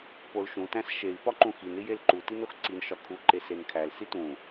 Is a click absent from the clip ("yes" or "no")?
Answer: no